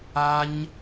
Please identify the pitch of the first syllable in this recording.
high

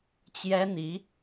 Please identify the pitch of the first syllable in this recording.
high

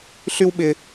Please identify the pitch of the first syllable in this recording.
high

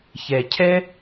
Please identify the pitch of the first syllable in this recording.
low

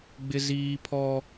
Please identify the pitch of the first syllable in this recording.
high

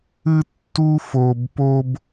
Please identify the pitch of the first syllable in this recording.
high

